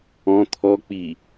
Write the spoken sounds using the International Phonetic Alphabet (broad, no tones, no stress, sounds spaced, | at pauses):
ɔ̃ t̪ʰ ɔ k͡p i